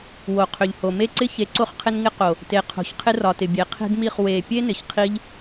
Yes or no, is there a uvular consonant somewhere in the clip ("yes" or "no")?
yes